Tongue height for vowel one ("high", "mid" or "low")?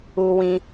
high